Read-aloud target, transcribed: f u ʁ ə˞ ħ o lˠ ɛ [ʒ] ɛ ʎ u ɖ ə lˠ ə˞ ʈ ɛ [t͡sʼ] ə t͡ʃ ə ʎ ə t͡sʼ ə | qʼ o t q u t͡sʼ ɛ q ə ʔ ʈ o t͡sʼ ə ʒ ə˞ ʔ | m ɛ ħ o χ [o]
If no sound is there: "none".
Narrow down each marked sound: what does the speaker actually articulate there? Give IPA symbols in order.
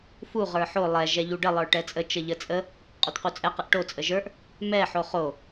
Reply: ʒ, t͡sʼ, o

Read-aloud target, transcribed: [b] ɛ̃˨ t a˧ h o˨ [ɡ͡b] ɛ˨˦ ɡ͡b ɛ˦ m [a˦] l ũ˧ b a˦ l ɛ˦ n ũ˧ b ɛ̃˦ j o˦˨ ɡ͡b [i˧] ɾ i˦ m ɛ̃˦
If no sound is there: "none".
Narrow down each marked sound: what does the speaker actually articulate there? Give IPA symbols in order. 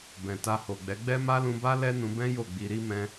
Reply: b, ɡ͡b, a˦, i˧

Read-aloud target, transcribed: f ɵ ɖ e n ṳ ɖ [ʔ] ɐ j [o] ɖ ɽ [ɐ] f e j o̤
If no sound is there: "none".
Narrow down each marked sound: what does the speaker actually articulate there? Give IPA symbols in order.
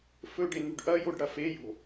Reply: ʔ, o, ɐ

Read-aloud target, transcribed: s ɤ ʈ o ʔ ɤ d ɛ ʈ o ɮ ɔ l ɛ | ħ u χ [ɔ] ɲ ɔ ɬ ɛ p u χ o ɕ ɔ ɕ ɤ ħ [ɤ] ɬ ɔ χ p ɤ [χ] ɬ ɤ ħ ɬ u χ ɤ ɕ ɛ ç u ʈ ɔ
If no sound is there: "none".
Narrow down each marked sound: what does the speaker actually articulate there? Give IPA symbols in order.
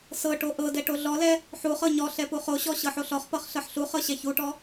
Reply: ɤ, o, χ

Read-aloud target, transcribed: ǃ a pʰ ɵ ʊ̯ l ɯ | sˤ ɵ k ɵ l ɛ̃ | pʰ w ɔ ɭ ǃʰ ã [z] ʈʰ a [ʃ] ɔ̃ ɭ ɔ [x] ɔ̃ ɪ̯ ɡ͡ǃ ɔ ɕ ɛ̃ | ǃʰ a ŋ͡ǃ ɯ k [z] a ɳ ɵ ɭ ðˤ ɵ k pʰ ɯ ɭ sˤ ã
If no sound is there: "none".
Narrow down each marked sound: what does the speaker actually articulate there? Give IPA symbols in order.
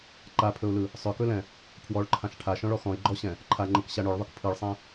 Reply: ɬ, ʃ, x, ɕ

